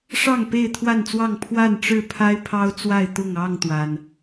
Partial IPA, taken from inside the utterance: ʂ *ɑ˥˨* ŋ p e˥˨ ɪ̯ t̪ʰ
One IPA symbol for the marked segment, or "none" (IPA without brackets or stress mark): ɑ˥˨